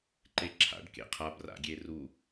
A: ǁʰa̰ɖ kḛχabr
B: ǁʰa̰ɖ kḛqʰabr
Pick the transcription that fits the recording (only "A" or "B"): B